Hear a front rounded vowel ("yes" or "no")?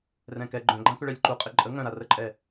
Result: yes